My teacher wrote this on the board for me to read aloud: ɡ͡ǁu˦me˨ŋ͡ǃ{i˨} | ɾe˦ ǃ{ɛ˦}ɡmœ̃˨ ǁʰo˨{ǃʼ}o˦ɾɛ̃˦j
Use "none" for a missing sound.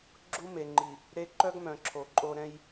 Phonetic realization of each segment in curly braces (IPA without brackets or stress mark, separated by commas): i˨, œ˦, ǃʼ